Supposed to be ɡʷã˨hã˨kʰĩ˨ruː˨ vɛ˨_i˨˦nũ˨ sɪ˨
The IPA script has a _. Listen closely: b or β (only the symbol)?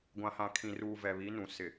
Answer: β